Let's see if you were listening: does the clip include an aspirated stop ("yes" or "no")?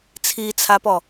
yes